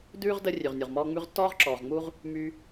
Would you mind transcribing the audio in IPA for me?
d ʉː˥ ʁ d ə˦ rʲ ʉ˩ ʁ nʲ u˩ ʁ m ɔː˦ ŋ͡m ʉ˦ ʁ tː ɔː˥ ʁ ǁ ɔː˨ ʁ ŋ͡m u˥ ʁ | m y˥

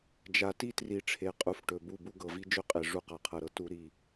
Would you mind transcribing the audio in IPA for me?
d͡ʒ a˨ t i˦ t r i˨ ʈ͡ʂʰ e˨ qʼ u˨ f ʈ ɵ˨ b u˦˨ b u˦ ɡ ɤ˨ v i˦ d͡ʒ ɵ˦ qʼ e˨ ʐ u˦˨ q a˨ qʰ ɤ˨ ɾ ɤ˦ t u˦ ɾ i˦

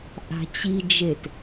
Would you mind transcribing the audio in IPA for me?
ʔ a̤ t͡ɕ i d͡ʒ e t

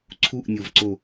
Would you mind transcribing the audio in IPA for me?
ǀʰ u ʔ nʲ o v ǀ o

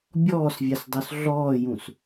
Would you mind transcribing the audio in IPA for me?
bʲ ɔː s vʲ a s dˤ o s ɮ ɔː j ũ s

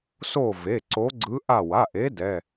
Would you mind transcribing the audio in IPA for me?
s o˦˨ v e˩˧˩ ǀ o˧˥ ɡ͡ǀ ɯ˧˥ ʔ a˦˨ w a˩˧˩ ʔ e˧˥ d ɛ˩˧˩

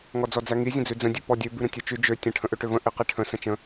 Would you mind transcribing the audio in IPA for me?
ŋ ɔ d͡z ɔ d͡z æ ŋ i zʲ ə̃ d͡z ʉ d͡z ə̃ dʲ ʉ p ɔ dʲ ø b ʉ ɾ ə̃ tʲ ø t͡ʃ ʉ d͡ʒ ø tʲ ə̃ ʈʰ ə̃ ʔ ø ʈ ø v ə̃ ʔ i q i ʈʰ ə̃ s ə̃ t͡ʃ ə̃

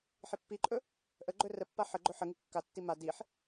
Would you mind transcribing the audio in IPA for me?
ħ i pː i ǃʼ ɵ | ʔ ə ɡ͡ǃ ɵ r ə pː a ħ ə ɡ͡ǃ ɵ ħ ə ŋ i kː a tː i m a d i ħ

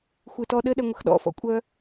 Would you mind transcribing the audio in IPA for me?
xʷ ɨ t ɔ ɗ ɘ ɗ ɛ ŋʷ ə x ɗ ɔ̰ f ɔ̰ kʷʼ œ

